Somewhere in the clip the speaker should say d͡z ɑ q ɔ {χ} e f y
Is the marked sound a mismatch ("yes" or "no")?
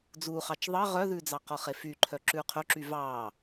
no